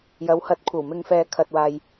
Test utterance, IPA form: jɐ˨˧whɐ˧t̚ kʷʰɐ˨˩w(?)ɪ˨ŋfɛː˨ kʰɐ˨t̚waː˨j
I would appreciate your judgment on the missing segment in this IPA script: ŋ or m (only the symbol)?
m